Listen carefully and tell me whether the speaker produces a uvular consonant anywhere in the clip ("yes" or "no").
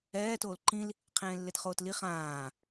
yes